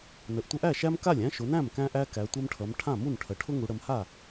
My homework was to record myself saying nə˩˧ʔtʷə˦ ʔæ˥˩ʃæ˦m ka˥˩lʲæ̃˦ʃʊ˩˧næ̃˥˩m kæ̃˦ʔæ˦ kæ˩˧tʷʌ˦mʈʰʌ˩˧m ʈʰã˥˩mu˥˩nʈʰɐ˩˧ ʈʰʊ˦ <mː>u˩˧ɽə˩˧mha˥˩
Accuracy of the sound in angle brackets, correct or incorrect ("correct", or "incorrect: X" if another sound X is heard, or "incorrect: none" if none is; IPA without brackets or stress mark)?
incorrect: ŋ